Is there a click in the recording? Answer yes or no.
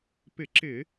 yes